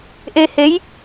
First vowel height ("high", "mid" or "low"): mid